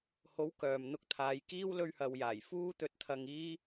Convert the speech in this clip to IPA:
h o˨˥ w k œː˨ m n̪ ʊ˧ k̚ t̪ʰ aː˨˧ j k iː˥ w l ɵ˧ ɥ h ɐ˨ w j aː˨˩ j f uː˥ t̪ ɵ˧ t̚ t̪ʰ ɐ˧ ŋ iː˥

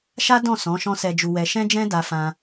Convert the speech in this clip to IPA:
ʃ a˦ d ɔ̃˦˨ s ɔ̃˨˦ ʃ ɔ̃˦ s ɛ˧ d͡ʒ u˧ w ɛ˧ ʃ ɛ̃˦ d͡ʒ ɛ̃˦ d a˧ f ã˧

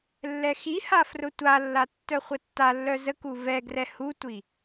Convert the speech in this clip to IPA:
lː ɛ x i h a f r ʊ tʷ a lː a tː œ χʷ ə tː a lː œ z ə k u v ɛ ɡ r ɛ h u tʷ i

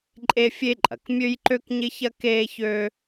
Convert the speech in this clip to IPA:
ǃʼ e˥ fʲ e˥ ǃʼ ɐ˩ k mʲ ø˥ j ǃ ø˥ k ɲ ɪ˥ ç ɐ˥ k eː˥ ç ø˥

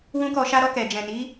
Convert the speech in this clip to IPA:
w ũ˦ k ɔ˧ ʃ a˦ ɾ ɔ˦˨ k ɛ˨ d͡ʒ ɛ̃˨ n i˨˦

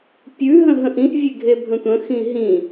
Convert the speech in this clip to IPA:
pʲ ʉ ɦ ə̃ ɦ ə̃ ʔ ĩ ʔ vʲ e ɡʱ e bʱ ə̃ tʷ ə̃ x ĩ ɦ ĩ

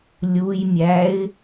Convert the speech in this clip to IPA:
lʲ u j mʲ æ ɪ̯

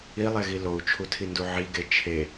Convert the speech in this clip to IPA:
i lˠ e ɣ i l o u̯ t͡ʃʰ u tʰ i n d u ʕ i ɡ e t͡ʃʰ e

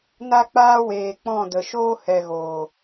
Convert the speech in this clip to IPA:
n a˦ k͡p aː˦ w eː˨ k͡p ɔ̃˦˨ d ə˨ ʃ oː˦ h ɛ˨ ɣ oː˨

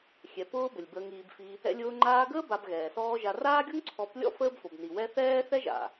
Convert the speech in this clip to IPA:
xʲ ɛ˨ p ʊː˦ b ə˨ lʲ b əː˧ ŋ iː˨ b f i˧ | ɛ̰˧ lʲ ʊː˧ ŋ͡ǃ aː˧ ɡ əː˦ b a˧ b ɣ ɛː˨ s ɔː˦ ʒ a˧ r aː˦ ɡʲ o˦ ŋ ǀʰ ɔ˨˦ p lʲ ɔ̰˦ f əː˦ b f o˨ b n i˨ w ɛ˦ θ ɛː˦ θ ɛ˦ ʒ a̰˨

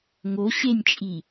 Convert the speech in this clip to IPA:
ŋ o ɕ e nʲ t͡ʃʼ i

